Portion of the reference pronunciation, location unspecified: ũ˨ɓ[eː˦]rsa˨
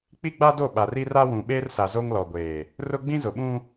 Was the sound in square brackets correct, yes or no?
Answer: yes